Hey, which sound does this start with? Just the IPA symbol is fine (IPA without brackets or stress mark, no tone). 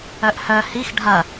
œ